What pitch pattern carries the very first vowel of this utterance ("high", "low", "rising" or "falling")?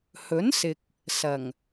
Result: rising